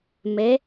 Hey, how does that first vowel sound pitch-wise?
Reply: rising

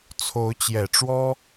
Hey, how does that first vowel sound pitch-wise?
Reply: rising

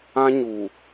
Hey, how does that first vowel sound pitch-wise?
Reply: high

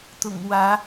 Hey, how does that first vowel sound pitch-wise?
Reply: low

